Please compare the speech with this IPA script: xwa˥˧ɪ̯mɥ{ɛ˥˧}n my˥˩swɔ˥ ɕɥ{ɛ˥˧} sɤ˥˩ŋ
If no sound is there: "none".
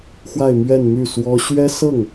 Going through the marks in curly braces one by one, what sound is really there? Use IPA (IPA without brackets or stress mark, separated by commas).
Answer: ɛ˥˧, ɛ˥